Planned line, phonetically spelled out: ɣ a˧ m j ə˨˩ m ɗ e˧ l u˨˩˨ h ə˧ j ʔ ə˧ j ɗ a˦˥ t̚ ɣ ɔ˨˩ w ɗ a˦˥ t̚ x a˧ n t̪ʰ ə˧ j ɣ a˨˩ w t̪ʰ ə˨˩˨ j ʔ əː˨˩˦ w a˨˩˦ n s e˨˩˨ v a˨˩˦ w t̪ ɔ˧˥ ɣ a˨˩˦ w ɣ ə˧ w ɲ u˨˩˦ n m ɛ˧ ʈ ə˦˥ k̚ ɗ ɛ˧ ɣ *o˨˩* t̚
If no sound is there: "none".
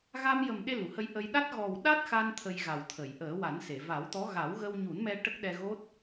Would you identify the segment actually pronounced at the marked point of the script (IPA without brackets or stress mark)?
o˦˥